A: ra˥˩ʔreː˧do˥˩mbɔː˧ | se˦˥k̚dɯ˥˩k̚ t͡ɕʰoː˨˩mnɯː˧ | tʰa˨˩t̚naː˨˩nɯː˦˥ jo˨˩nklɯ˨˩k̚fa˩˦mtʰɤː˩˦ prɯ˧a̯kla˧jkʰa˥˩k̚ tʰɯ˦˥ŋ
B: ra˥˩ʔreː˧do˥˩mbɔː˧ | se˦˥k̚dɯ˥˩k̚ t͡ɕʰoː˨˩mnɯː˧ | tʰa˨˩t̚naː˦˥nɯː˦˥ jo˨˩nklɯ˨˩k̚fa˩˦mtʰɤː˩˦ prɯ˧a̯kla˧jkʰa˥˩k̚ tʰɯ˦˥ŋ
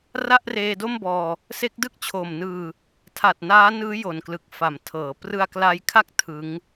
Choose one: B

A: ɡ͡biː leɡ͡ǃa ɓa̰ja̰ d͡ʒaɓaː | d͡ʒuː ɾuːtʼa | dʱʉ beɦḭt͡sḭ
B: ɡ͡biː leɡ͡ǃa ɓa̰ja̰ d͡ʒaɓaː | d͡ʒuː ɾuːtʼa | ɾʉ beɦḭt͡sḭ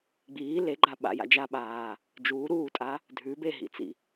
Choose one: A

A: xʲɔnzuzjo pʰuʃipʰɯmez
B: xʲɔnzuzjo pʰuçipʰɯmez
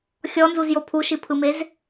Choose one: A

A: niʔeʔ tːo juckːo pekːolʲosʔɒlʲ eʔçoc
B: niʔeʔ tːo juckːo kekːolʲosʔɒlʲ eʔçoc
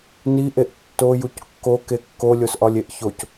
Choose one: B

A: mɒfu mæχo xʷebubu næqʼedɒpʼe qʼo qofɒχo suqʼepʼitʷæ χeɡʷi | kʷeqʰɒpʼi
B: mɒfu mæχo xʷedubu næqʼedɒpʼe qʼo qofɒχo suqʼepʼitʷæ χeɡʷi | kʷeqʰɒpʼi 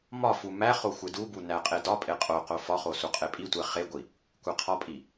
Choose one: B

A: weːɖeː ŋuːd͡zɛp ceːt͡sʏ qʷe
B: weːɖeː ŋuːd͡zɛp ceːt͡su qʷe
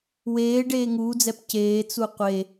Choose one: B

